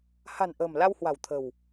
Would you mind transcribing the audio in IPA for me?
ha̤˨˩nʔə̤ː˨˩m la˧whwa̤˨˩w t̪ʰə̤˨˩w

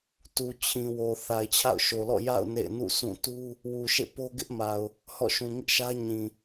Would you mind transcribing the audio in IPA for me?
tu˨ t͡ɕʰĩ˨wo˨ θa˨ɪ̯t͡ɕʰa̰˦˨ʊ̯ʃo˨lɔ̰˦˨ ja̰˦˨ʊ̯ nḛ˦˨ɪ̯ nṵ˦˨ sʰũ˦˨ tu˦ | wu˨ʃḛ˦˨ po˦ɡɪ˦ʔma˨ʊ̯ | hɔ̰˦˨ʃũ˨ ŋɪ˦ʔʃä˦ ɲĩ˨

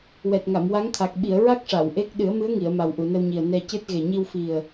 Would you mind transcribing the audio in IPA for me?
wɛ˨˩t̚ŋa˨˩˨mwa˧˥ŋt̪ʰa˨˩k̚ ɓi˨˩˨ə̯ɹa˦˥k̚ ʂa˨˩˨wʔe˦˥k̚ ɗɨ˨˩˦ə̯mɨ˧˥ə̯ŋi˨˩˨ə̯ ma˨˩wʔu˨˩˨nə˧wɲi˨˩ə̯ nɛ˧cɨ˦˥t̚ ɣe˨˩ɲi˧wfi˨˩ə̯

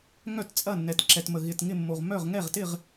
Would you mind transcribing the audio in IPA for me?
ŋœ˥˨tt͡sʼɐ˥˨nːɛ˨t ǁɛ˨tmə˨ ɣɪ˨t ŋɪ˥˨mːo˨ʁ mœ˥˨ʁ ŋɛ˥˨ʁtɪ˥˨ʁ

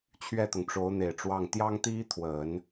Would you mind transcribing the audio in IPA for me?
t͡ɕʰɥɛ˥˩t̪ʊ˩ŋʈ͡ʂo˧˥ʊ̯n̪e˨˩ɪ̯ ʈ͡ʂwɑ˥˩ŋ t̪jɑ˥ŋt̪i˥t̪ʰwə˨˩˦n

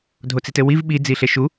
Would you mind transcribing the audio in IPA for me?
dʱot͡sitɘwiv ɓi d͡ziɬeʃu

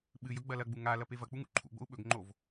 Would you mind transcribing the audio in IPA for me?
ɓɨj ɵɡ͡bɐlɐɡ͡bu ŋa lɐpevɐk͡pu ŋṵǃʰṵɡ͡bo̰u̯ ɓɵɡŋ͡ǃov

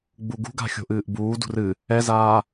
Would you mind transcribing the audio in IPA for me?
ɡ͡buɡṳɡa̤ xʲo̤ʔɨːʔbuːdṳr ɨ | ɛzaː

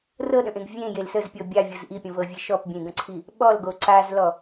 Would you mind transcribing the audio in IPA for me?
rɤɗə̃ʔẽɡ vʲẽjel səzpʲɤ bʲavʲɤz ʔipʲə̃vɤvʲe ʃɔpbʲẽɡə̃ǀʰi | ɓɔlɡo ǀazlɔ

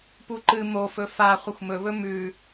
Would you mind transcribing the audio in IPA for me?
puǃɨ mofɵ fa χʷɐxʷmɵβɵ mʉ

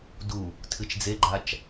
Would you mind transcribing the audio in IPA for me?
du | tʰɨt͡ʃd͡zeɡ͡ǃat͡ʃ

